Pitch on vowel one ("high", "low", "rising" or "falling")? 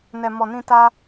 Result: low